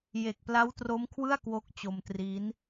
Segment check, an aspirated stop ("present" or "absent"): present